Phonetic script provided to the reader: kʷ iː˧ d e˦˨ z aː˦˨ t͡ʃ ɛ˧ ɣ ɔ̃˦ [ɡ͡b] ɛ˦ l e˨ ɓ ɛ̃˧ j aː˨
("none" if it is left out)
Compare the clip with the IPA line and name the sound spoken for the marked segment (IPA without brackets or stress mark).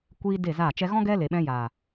ɡ